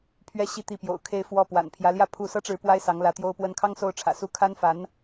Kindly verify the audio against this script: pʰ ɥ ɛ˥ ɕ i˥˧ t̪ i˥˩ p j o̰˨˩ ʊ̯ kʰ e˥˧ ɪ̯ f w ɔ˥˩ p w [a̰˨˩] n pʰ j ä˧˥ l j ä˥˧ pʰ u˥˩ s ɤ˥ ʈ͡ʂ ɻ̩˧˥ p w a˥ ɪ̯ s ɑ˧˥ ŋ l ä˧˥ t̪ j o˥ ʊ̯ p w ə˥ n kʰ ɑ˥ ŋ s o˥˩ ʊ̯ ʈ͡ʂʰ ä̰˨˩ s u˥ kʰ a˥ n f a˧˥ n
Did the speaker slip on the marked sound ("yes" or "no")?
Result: no